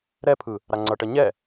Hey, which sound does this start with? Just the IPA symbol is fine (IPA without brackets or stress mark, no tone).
ɾ